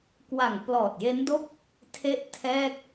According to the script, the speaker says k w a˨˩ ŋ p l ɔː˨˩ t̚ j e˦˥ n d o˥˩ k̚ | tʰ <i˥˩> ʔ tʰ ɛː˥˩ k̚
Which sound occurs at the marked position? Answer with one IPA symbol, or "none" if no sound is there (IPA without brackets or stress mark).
e˥˩